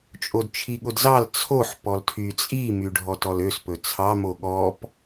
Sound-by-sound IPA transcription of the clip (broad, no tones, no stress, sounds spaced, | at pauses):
t͡ʃʼ o d t͡ʃʰ i ɠ o d z ɑ l t͡sʰ o ħ p ɔ l tʰ y t͡sʼ i m y ɖʱ ɔ t ɔ l ø s p ɵ t͡sʰ ɑ m o ɠ ɔ p